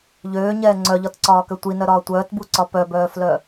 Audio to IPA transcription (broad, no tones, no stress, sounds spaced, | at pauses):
ʎ øː ɲ ɛː ŋ͡ǀ œ ʎ ɒ t ǀ ɒː k ø tʷ i n œ ɾ ɒː tʷ œː t b u ǀ ɒ p œ b œː f l œ